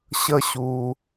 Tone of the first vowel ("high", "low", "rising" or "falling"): high